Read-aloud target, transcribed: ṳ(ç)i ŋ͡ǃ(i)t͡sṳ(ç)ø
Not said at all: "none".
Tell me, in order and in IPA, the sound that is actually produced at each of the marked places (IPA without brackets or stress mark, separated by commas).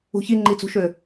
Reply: ç, i, ʃ